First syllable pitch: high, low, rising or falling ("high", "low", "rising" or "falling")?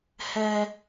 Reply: high